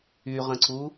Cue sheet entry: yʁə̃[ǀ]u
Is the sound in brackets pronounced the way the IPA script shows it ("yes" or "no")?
yes